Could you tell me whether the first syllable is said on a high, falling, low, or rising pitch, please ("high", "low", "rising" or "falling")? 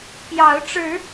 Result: rising